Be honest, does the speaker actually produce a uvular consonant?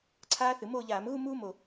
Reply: no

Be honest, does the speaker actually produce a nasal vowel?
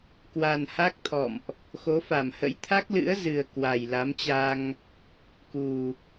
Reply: no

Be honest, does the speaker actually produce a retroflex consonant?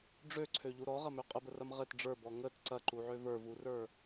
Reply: yes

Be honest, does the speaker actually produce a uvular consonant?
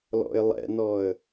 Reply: no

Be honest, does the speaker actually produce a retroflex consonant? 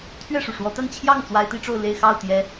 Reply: yes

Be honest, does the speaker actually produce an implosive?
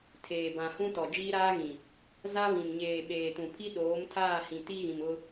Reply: yes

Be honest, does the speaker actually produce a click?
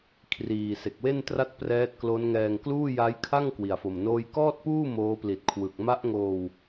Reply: no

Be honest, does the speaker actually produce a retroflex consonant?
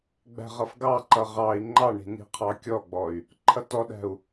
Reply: yes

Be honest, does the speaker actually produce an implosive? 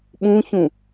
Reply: yes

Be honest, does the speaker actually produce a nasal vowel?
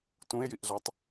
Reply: yes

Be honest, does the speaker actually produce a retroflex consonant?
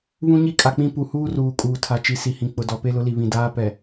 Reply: no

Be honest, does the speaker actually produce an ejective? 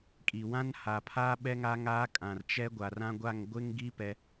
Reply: yes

